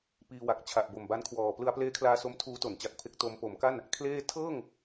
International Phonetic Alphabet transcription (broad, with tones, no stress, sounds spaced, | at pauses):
p iː˧ w a˨˩ k̚ t͡ɕʰ a˨˩ ʔ b o˨˩ m b a˦˥ n kʰ w ɔː˨˩ p l ɯ˧ a̯ p l eː˦˥ kʰ l aː˧ s o˦˥ m tʰ uː˦˥ t o˩˦ n t͡ɕ a˨˩ k̚ pʰ e˦˥ k̚ t o˧ m p o˩˦ m k a˥˩ n | kʰ l eː˥˩ tʰ ɤː˥˩ ŋ